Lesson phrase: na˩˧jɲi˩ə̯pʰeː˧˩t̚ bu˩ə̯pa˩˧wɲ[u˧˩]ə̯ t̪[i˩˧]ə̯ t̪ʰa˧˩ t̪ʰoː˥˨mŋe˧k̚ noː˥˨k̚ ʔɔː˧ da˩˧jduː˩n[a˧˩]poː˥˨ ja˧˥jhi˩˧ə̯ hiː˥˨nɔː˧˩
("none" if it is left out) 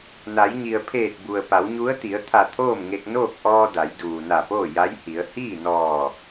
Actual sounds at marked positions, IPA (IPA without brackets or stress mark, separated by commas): u˧˥, i˩˧, a˧˩